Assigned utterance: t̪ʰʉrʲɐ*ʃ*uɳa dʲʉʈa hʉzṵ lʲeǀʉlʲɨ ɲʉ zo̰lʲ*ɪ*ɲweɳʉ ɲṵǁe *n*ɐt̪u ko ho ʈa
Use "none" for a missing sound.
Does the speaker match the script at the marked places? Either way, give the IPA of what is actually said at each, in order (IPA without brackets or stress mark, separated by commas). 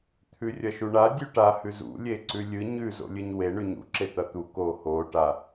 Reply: ʃ, ɨ, t̪